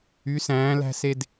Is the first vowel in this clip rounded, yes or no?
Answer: yes